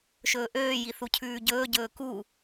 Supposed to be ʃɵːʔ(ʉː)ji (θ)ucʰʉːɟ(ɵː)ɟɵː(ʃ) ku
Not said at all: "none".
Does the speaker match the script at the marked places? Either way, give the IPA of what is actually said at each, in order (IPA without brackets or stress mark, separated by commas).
øː, θ, ɵː, none